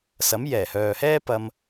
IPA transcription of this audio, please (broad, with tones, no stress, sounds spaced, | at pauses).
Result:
s ɐ˨˥ m j ɛː˨˩ h œː˨ h ɛː˥ p ɐ˧ m